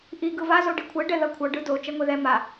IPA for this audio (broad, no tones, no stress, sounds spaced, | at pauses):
ʔ i ɡ ɯ v a z o ɖ i kʷʰ ɛ ɖ ɛ ð ʌ kʷʰ ʌ ɖ ɯ d o t͡ʃ ɛ ŋʷ e ð ɛ m a